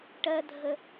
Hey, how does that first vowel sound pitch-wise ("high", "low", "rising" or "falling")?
high